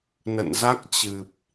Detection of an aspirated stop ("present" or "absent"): absent